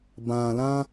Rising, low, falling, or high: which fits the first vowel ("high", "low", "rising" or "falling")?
low